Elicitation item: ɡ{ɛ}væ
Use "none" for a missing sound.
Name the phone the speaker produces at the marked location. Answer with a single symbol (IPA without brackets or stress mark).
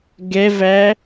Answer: ɛ